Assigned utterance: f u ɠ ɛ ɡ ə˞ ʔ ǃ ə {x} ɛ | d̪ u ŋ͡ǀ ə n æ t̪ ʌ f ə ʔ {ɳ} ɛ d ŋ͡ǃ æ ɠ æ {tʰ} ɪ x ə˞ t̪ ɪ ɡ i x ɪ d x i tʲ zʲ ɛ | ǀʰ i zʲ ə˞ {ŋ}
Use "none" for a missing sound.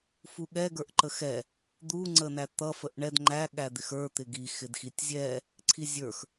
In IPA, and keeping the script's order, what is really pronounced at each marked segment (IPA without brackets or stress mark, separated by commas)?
x, ɳ, d̪, x